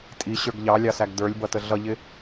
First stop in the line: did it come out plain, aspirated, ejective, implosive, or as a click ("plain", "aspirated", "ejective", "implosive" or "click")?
ejective